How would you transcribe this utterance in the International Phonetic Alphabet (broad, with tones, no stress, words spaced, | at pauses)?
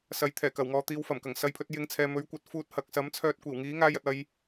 sɐ˨˥jt̪ʰɛː˨˩kɐ˨˩wŋɔː˨ t̪iː˨wfɐ˨˩mkɐ˨˩ŋ sɐ˧jpʰɵ˧t̚jɪ˧ŋt͡sʰɛː˨ mɵ˨˥ɥkʷɐ˨˥t̚ fuː˧t̚ hɐ˨k̚ sɐ˨˥m t͡sʰœː˧t̚kʷiː˨˩w ŋiː˨˥ŋaː˧jɐ˨t̚ɐ˧j